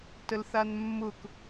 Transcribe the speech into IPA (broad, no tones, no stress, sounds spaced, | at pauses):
t ə l θ a n mː ʊ k